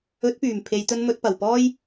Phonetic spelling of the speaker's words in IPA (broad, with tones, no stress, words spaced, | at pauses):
ɵ˨˥t̚pyː˨˩m pʰe˨˧jt̪ɵ˧n mɵ˨˥t̚pɐ˨wpɔː˥j